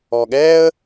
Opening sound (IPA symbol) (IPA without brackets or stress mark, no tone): ɔ